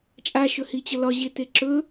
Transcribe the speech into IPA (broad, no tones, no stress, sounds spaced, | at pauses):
t͡ʃʼ a ʃ ɵ h i t͡ɕ ʌ l ɒ ʑ e t e ǁ ɵ